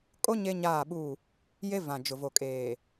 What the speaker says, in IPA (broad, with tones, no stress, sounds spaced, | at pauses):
kʼ o˦ ɲ e˦ ɲ aː˦˨ ɓ u˦˨ | j e˦ v ã˨ d͡ʒ ʊ˨ v o˨ kʼ eː˨